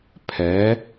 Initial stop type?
aspirated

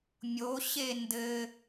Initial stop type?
plain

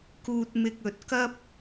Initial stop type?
plain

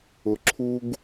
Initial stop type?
click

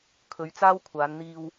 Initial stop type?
aspirated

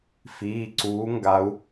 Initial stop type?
click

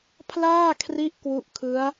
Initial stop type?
aspirated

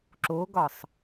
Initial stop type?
click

